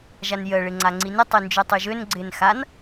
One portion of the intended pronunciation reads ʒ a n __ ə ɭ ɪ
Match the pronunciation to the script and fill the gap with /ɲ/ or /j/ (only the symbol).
j